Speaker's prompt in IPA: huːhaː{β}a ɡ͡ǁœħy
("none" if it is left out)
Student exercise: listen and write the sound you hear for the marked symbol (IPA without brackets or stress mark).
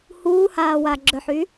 w